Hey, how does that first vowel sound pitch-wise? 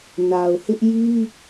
low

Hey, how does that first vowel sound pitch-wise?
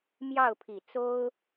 falling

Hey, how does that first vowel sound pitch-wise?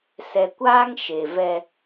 low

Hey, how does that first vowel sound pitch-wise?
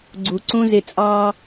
low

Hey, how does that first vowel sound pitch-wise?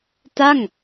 falling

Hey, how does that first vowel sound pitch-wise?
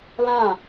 falling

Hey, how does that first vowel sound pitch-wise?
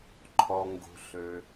low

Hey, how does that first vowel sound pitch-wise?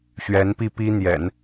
rising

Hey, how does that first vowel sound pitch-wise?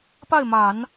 falling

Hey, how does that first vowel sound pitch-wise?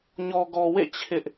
low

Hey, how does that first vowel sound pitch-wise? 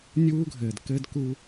high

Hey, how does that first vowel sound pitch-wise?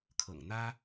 low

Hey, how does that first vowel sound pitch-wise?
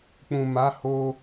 low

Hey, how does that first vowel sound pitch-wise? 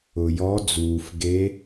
low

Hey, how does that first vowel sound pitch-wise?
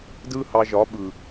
high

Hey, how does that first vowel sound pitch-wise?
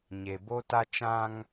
low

